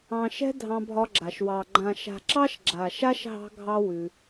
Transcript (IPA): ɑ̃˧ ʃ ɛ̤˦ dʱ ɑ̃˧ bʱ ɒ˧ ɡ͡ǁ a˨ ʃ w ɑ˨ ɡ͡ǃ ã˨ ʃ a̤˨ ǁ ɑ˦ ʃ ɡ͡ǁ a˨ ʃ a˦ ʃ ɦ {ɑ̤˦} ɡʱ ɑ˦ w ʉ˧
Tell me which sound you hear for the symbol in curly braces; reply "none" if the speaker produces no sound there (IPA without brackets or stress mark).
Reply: ɑ̤˦